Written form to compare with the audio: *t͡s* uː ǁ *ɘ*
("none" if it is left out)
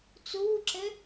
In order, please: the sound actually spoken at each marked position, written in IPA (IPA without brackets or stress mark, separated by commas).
t͡s, ɘ